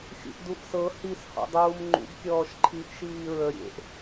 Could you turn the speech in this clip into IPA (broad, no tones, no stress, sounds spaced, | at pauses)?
xʲ ṵ ʔ d u ʔ s ɤ h i s h ɔ̰ dˤ uː m ŋ͡ǃ ṵ ɡ kʲ ɔː ʃ ǃʰ i ʔ ʃ iː ɹ ə ɾʲ ḛ ʔ